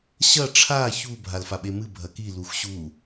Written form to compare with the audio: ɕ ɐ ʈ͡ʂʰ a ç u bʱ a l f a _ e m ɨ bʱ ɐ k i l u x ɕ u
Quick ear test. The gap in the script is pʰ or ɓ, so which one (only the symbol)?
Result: ɓ